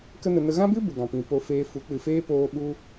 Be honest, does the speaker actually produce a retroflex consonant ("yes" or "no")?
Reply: no